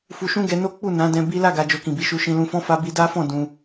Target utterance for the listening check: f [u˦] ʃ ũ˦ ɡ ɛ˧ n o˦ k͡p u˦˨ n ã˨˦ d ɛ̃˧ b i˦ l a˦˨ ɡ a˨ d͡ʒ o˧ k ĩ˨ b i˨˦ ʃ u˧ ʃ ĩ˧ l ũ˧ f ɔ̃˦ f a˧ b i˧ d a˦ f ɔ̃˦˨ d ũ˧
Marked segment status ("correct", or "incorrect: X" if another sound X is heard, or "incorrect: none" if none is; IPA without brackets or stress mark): incorrect: u˧